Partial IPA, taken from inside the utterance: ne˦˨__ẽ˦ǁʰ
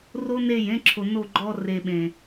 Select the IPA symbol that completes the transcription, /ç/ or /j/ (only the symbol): j